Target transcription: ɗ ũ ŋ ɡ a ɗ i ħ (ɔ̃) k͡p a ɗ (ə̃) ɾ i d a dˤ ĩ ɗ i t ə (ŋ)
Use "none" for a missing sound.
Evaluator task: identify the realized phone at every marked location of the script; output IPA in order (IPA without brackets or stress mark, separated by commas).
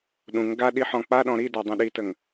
ɔ̃, ɔ̃, ŋ